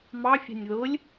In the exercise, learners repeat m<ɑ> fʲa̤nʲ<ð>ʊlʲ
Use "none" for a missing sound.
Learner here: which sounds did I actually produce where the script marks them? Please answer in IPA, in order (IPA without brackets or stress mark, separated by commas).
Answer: ɑ, ð